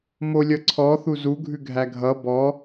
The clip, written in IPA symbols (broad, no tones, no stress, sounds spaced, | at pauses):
m o lʲ ʌ ǀʰ ɔ θ u z u ɡʱ ʉ ɡʱ æ ɡʱ ʌ b ɔ